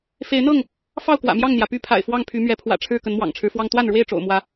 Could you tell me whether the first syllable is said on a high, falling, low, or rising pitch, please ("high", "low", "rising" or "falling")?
rising